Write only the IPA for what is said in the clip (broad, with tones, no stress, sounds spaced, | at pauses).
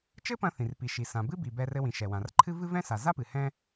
t͡ʃ ɘ˥ p ɐ̃˧ θ ĩ˩ r p i˩ ʃ i˩ s ã˩ b ɨ˥ b i˩ b ɛ˧ r ɘ˧ w ĩ˩ ʃ ɛ˩ w ã˩ r ǃʰ ɨ˥ v ɨ˥ v ɛ̃˥ s a˩ z a˥ p ɨ˩ h ɛ̃˥